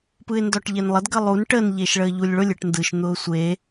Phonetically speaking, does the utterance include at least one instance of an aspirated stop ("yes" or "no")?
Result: no